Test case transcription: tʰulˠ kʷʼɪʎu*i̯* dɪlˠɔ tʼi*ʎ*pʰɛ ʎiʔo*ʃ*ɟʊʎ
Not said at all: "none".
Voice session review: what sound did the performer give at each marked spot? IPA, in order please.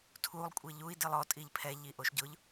i̯, ʎ, ʃ

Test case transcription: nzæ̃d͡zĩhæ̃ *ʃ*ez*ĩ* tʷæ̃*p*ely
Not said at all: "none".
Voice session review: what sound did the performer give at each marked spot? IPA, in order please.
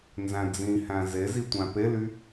z, i, p

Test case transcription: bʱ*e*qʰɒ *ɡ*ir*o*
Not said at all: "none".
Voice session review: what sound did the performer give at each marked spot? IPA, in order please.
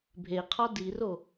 e, d, o

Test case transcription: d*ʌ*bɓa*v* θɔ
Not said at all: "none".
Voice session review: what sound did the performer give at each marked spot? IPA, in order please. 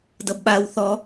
ʌ, w

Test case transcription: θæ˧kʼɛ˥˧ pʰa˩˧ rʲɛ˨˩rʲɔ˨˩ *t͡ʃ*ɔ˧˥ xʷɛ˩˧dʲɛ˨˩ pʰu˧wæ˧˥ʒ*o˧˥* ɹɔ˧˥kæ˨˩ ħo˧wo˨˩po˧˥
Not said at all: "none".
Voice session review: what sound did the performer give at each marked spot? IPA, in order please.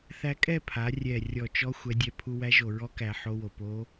t͡ʃ, o˨˩

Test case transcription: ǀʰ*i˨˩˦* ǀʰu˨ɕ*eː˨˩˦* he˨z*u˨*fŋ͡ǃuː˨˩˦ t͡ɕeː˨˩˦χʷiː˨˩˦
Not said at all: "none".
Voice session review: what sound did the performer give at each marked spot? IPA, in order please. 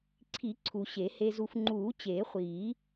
i˨˩˦, e˨˩˦, u˨

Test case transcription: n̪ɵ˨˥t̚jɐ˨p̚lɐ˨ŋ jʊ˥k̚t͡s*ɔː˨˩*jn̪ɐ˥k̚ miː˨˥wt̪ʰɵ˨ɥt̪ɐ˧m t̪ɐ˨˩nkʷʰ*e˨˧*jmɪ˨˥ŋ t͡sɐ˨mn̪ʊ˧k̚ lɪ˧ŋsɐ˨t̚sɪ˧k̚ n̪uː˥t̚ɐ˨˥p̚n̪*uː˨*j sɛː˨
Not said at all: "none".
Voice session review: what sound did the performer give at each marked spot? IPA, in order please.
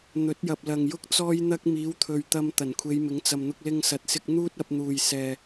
ɔː˥, e˨˧, uː˨

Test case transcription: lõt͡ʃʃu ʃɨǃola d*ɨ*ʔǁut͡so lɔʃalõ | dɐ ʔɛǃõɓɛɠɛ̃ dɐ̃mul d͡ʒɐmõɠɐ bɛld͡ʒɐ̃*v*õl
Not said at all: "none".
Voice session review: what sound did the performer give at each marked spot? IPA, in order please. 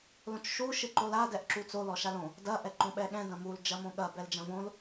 ɛ, v

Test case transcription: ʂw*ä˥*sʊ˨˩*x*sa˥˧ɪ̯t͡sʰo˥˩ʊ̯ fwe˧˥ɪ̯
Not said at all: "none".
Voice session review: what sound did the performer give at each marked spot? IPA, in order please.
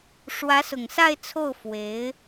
ä˧˥, ŋ

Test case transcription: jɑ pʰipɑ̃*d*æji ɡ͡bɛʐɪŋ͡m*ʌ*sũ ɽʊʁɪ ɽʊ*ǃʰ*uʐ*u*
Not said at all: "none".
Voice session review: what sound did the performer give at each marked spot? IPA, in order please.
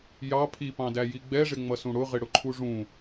d, ʌ, ǃʰ, ũ

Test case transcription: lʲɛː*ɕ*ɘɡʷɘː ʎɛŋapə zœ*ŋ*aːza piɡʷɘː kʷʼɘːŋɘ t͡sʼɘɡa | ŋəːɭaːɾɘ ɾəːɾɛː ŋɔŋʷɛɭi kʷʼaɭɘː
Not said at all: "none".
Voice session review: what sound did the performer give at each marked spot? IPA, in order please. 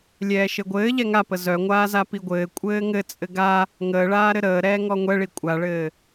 ʃ, ŋʷ

